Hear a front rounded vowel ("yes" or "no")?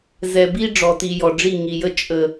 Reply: no